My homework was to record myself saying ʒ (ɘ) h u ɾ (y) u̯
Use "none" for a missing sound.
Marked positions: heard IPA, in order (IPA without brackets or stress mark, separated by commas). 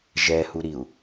ɛ, i